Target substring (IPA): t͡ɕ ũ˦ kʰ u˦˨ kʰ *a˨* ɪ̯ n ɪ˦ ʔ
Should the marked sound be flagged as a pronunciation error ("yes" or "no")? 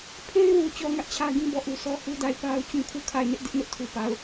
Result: yes